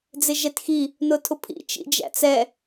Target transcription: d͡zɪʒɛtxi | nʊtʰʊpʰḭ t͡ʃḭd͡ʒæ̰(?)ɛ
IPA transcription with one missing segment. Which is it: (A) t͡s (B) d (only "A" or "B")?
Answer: A